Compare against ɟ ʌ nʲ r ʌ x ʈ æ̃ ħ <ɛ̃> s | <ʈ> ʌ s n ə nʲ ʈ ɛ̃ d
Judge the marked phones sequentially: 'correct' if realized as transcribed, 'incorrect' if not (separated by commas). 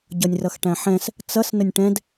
correct, incorrect